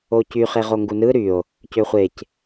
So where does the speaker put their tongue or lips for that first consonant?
palate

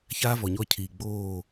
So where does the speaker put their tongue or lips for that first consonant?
palate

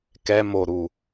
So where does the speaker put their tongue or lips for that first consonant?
velum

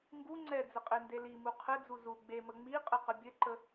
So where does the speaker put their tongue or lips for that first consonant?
velum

